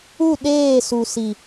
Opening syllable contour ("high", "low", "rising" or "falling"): falling